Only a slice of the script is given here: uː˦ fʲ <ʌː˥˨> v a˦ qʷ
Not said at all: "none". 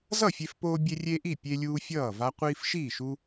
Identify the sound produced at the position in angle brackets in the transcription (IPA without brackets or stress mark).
ʌː˥˨